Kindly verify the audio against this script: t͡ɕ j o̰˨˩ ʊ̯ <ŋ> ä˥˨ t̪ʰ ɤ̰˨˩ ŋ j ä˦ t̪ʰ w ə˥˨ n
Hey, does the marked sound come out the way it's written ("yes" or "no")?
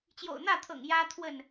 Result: no